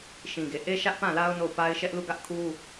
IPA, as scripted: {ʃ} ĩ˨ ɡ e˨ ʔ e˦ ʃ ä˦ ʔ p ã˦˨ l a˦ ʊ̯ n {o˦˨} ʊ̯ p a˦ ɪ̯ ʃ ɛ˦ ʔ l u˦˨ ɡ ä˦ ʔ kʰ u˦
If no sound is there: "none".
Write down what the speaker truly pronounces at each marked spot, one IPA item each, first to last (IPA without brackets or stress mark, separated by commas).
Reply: ʃ, o˦˨